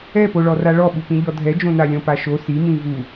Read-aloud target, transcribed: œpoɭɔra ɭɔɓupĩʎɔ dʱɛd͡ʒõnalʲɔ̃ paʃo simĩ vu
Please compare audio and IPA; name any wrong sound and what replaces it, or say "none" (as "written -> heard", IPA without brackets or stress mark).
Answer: œ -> ɛ